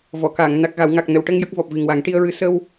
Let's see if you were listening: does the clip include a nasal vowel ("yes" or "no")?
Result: no